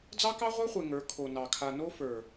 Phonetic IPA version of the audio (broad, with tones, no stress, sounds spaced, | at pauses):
d͡z ɑ˦ k ɑ˦ ʁʷ ə˞˦ χʷ e˨ ŋ ə˞˨˦ kʰ o˨ n ɑ˨ kʰ a˨ n o˦ f ə˞˨